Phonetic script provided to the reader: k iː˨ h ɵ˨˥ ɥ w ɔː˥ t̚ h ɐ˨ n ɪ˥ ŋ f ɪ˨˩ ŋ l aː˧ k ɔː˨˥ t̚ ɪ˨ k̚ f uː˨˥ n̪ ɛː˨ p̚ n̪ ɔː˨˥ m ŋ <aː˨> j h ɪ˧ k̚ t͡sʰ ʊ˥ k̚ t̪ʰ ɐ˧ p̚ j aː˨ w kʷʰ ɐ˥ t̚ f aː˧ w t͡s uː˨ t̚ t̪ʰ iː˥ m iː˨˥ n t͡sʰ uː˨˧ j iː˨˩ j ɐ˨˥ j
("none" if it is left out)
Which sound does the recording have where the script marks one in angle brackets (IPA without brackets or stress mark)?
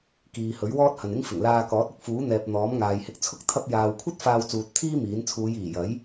aː˨